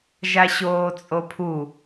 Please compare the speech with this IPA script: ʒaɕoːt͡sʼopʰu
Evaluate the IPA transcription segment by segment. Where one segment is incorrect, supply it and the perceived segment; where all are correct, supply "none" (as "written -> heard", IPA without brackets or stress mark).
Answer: none